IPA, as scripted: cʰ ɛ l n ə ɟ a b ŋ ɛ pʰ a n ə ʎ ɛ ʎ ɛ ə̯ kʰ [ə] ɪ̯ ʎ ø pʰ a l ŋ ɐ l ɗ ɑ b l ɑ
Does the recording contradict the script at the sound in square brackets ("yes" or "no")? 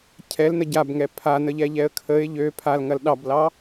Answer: no